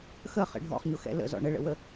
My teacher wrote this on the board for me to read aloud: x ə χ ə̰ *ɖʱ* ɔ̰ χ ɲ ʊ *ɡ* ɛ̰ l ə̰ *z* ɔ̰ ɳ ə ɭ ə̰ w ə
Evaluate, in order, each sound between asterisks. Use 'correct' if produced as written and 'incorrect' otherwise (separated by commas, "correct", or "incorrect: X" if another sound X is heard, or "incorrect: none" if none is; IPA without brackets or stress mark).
correct, incorrect: x, correct